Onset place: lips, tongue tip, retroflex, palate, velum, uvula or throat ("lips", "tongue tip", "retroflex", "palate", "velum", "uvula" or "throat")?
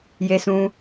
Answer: palate